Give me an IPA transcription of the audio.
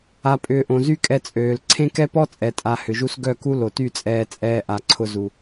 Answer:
a˨ pʼ ʏː˧ ʔ õ˨ z y˦ kʼ ɛ˧ t͡sʼ øː˨ l ǀʰ ẽ˦ k ɛ˦ p ɔ˦ t͡sʼ ɛ˨ tʼ a˨ h ʏ˨ ʒ u˦ s ɡ œ˦˨ k u˦ l o˨ t y˦˨ t͡sʼ ɛː˧ t͡sʼ ɛː˧ ʔ a˨ ǀʰ ʊ˧ z u˨

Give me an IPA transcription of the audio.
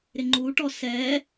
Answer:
ɾ ɪ ŋ͡ǃ u ʈ ɔ s ɛ

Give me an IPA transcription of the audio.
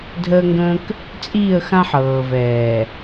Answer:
dʱ əː˦ ŋ ɡ ə̃ː˦ k | t͡sʼ iː˦˨ ə̯ x ã˦ ħ ɤː˨ v ɛː˨

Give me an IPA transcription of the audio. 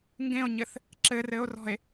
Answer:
ŋ ɡ ẽ o̯ ɲ ɘ θ | ǁ ɘ r ɘ o̯ r ɔ̤ e̯

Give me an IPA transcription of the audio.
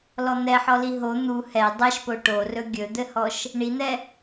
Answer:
l ɔ n̪ ɛ ħ ɔ l i ɦ o n̪ u h ɛ dˤ ɛ ʃ p o ʈ o r ɵ ɡʲ ɵ d̪ ɘ h ɔ ʃ | ɳ i n̪ ɛ

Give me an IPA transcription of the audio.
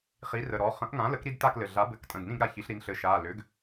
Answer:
χ i˩˥ r ə˩˧˩ ɾ ɔ˩˧˩ χ ə̃˩˥ ʔ ŋ ã˩˥ l ə˩˥ k ɾ i˥˨ d t a˥˨ k l ɘ˩˧˩ ɮ a˩˥ b ɘ˩˧˩ k tʼ ə̃˩˧˩ d n ĩ˥˨ ɡ ɾ a˩˥ ç i˩˥ ɬ ɾ i˩˥ n ɬ ɘ˩˥ ʃ a˩˧˩ l ʏ˩˥ ɡ

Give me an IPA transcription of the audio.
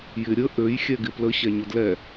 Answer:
j ɪ ɾʲ ə ʔ ø j xʲ ɛ ɡ ɪ p l ə ɕ ɛ ɲ ʊ d l ɛ

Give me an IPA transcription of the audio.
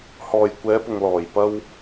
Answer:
h ɔː˨ j kʷ ɛː˨˧ p ʊ˨ ŋ l ɔː˨˩ j p ɐ˧ w

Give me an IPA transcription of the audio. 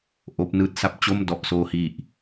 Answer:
ʔ oː˦˥ p̚ n ɯː˦˥ t̚ s a˦˥ p̚ t͡ɕ o˥˩ m d ɔ˨˩ ʔ s oː˧ h i˨˩ ʔ

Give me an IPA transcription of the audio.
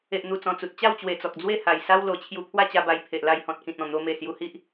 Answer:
e˨ ʔ n̪ u˨˩ t͡s ɔ̃˨˩ t͡s u˨ t̚ t͡ɕ a˥˧ w t͡ɕ w e˨˩ t͡s ɔ˨ k̚ d͡z w e˥˧ h a˨˩ j s a˦ w l o˨˩ t͡ɕʰ j u˧ pʰ w a˥˧ t͡ɕ a˧ b a˧ j pʰ e˨ ʔ l a˧ j h ɔ̃˨ t̚ k ĩ˨ t̚ ɔ̃˨˩ n̪ o˧ m e˨˩ s j u˧ h i˦ ʔ

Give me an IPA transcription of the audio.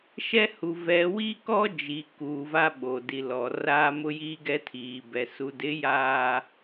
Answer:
ʃ ɛ˦ h u˨ v ɛ˨ w i˦ k ɔ˦ d͡ʒ i˨ k uː˨ v a˦ ɓ o˨ d i˨ l ɔ˨ r aː˦ m ʊ˦ j iː˦ ɡ ɛ˦ tʰ iː˨ b ɛ˨ s u˨ d ɪ˨˦ j aː˨

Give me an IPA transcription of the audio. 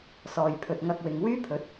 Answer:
s ɔː˨ j pʰ ɵ˨ t̚ ŋ ɐ˧ k̚ w ɪ˨ ŋ w yː˥ pʰ ɵ˨˥ t̚

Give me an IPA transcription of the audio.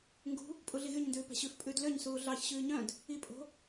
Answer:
ŋ ɡ ṳ | pʼ u ɮ i ɣ y ɲ n d ʉː p æ̤ ɕ ʉ f pʼ ʉː d l ø ɲ s uː ɮ ɑ ç ɕ ʉː ɲ œ̃ d | i pʼ o̤

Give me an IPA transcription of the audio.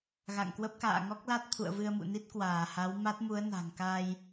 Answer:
ɣ a̰˧˨ ŋ k w ə˦˥ p̚ k a̰ː˧˨ ŋ ɔ˦˥ k̚ l a˦˥ t̚ t̪ʰ ṵ˧˨ ə̯ v ɨ˧ ə̯ m ṵ˧˨ n i˦˥ t̚ k w aː˧˩ h a˨˦ w m a˦˥ t̚ m u˨˦ ə̯ n a̤˨˩ ŋ k a˧ j

